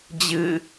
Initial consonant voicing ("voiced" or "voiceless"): voiced